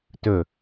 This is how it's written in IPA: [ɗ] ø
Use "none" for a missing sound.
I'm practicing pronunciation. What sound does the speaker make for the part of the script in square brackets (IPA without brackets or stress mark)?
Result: t